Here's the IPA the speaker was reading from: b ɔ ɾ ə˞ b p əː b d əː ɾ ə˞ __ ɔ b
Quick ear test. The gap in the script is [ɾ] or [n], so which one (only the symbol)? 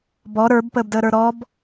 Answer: ɾ